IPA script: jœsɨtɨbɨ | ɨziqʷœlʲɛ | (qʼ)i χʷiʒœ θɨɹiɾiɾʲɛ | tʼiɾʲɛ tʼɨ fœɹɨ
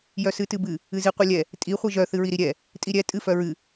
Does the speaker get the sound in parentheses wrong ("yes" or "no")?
yes